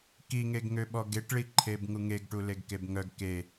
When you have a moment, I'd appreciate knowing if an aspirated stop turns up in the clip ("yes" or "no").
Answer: yes